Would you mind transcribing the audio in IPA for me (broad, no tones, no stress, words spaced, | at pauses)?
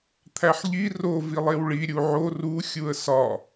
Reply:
t̪ʰæħʎi ro vilˠewɭi ɾʲuʕo ru xʲuə̯sɒ